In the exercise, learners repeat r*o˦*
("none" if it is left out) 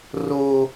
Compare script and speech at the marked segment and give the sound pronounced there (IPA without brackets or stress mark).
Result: oː˦